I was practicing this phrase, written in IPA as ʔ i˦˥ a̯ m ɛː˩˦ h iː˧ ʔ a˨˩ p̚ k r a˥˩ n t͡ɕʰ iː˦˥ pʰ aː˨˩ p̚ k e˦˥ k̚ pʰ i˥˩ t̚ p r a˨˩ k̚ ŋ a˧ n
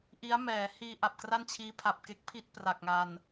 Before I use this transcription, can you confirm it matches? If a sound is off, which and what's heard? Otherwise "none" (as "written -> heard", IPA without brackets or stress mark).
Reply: aː˨˩ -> a˨˩